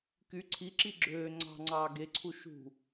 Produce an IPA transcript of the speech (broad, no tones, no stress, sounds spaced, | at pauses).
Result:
k y ǀʰ i ǁ i ɡ͡ǁ øː ŋ͡ǀ ɑ̤ ŋ͡ǀ ɑː ɡ e ǀʰ u ʃ ṳ